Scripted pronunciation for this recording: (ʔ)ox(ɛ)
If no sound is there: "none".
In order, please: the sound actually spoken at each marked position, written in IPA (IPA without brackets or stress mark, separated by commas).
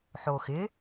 ħ, ɪ